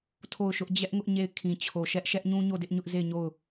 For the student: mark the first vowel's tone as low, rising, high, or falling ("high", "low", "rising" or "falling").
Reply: falling